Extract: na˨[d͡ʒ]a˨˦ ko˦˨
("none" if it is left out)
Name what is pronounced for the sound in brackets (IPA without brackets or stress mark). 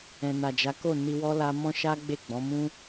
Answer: d͡ʒ